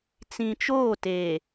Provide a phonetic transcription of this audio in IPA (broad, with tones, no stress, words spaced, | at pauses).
t͡sĩ˨ t͡ʃoː˦˨teː˨